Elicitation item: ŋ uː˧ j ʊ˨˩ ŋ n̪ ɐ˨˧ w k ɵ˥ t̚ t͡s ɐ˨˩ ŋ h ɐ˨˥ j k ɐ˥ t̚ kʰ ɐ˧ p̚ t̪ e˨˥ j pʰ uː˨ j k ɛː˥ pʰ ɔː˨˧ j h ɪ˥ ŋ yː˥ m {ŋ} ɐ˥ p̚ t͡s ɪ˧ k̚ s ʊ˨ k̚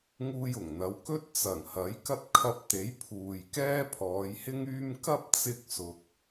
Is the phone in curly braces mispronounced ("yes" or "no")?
yes